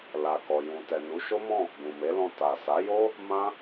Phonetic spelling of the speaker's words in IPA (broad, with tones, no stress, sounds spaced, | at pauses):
l a˨ k ɔ˨ j ũ˨ t ɛ˨ n u˨˦ ʃ o˦ m ɔ̃˦˨ | ɡ ũ˨ m e˨˦ l ɔ̃˧ t a˨ s a˨˦ j o˦ | m ã˦